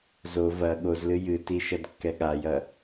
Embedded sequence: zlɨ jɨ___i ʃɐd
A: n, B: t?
B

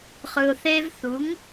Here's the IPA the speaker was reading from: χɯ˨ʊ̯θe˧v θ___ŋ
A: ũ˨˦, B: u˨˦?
B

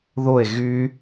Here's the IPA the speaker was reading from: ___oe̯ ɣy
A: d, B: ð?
B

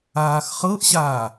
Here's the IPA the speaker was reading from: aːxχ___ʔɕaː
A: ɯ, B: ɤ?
B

